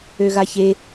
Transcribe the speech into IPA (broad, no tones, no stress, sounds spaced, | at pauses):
ø ɣ a ç e